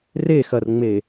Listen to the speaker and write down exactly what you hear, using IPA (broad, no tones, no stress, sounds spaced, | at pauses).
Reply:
r e x ɐ r ŋ͡m e